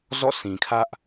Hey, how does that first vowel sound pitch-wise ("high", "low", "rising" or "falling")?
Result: falling